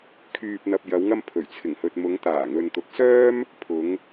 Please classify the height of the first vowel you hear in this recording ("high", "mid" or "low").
high